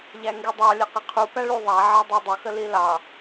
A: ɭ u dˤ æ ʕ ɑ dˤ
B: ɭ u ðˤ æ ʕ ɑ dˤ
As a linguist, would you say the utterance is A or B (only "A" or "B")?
B